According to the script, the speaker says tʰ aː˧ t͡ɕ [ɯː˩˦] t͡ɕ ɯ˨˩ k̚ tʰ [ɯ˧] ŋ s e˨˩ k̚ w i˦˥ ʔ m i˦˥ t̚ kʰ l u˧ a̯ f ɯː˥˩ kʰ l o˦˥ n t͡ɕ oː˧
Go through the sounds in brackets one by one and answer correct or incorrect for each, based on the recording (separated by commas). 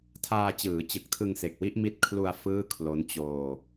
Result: correct, correct